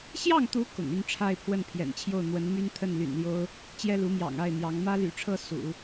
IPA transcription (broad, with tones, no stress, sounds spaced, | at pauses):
ɕ j ɑ˥˩ ŋ t̪ u˧˥ k ʊ̰˨˩ ŋ y˥˧ n ʈ͡ʂʰ a˥˧ ɪ̯ pʰ w ə˥˩ n pʰ j ɛ̰˨˩ n t͡ɕʰ j o˥˩ ʊ̯ n̪ w ə˧˥ n m y˥ n t̪ʰ ə˥˩ n l y̰˨˩ n l j o˥ ʊ̯ | t͡ɕ j ɛ˥ l u˧˥ m j ɑ̰˨˩ ŋ a˥˩ ɪ̯ n̪ j ɑ˧˥ ŋ m ä˥ l y̰˨˩ ʈ͡ʂʰ ɤ˥˩ s ṵ˨˩˦